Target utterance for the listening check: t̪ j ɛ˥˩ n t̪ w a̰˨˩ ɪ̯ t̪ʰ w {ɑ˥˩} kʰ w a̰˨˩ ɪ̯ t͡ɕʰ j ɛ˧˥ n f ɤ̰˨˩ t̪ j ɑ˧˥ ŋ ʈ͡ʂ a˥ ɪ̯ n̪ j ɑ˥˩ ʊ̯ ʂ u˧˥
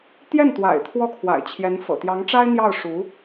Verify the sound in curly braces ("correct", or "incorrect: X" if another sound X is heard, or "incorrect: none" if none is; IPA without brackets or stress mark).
incorrect: ɔ˥˩